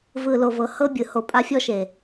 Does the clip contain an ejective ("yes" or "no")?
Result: yes